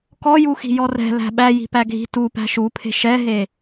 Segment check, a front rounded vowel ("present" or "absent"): absent